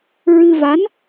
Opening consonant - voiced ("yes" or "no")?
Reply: yes